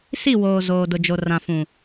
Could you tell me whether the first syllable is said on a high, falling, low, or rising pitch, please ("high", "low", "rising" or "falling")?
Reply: falling